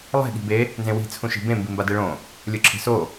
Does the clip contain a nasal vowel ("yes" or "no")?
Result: yes